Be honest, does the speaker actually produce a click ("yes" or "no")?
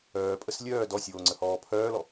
yes